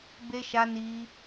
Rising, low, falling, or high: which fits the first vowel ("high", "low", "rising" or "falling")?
high